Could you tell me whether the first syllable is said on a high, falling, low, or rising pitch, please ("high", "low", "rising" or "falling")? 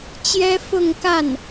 high